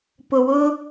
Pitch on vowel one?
low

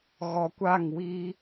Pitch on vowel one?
low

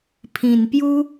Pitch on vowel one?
low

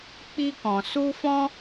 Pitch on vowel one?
high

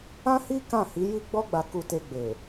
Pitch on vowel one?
high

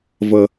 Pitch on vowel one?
low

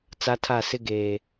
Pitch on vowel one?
high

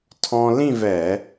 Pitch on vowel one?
high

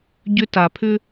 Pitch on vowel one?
high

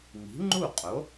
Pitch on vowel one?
rising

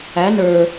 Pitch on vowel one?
rising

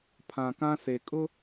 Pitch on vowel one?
low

